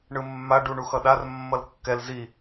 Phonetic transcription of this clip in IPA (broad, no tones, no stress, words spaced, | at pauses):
ɳɯmːa ɖuɳuxʌɗar mːʌlkːɛl zi